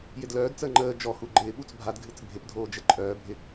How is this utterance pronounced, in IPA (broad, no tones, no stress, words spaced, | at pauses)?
jɪdlœːdt͡səː ŋ͡ǃəː d͡ʒɔhu ɡ͡ǃɪː ɓut͡sbʱadɡʱɨt͡s bʱɪpdʱoː d͡ʒəǃʼœːbʱɪ